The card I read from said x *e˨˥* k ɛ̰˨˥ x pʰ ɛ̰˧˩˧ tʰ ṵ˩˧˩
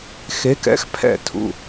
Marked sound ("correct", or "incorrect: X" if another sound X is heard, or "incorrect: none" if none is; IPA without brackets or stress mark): correct